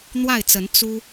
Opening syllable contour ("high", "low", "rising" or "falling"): falling